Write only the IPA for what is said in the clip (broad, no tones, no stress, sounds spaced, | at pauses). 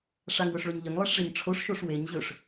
ʂ a ŋ w ɵ ʂ ɭ ɵ ɲ ʎ ə ŋ lˠ e ʂ ʐ e ɲ ʈ͡ʂʰ o ʂ ʃ o ʂ w e ɲ ʑ ɵ ʂ